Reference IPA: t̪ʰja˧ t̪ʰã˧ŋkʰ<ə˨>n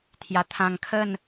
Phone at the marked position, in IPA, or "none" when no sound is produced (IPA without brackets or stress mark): ə˥˧